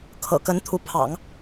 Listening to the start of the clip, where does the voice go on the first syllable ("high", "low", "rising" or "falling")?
low